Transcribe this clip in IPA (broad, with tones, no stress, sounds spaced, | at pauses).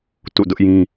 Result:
t ṵ˦˨ d ʊ˦ ʔ j ĩ˦